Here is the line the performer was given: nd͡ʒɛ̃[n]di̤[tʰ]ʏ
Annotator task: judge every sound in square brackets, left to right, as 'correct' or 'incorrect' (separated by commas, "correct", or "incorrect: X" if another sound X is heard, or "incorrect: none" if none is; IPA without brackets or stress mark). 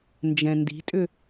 correct, incorrect: tʼ